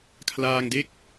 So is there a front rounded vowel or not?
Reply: no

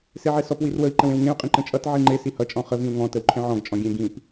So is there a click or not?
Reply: yes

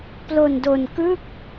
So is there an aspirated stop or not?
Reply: no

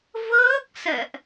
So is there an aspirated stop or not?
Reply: no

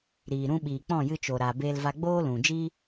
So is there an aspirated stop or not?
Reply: no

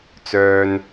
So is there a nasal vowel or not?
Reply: no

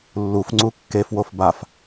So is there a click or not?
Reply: yes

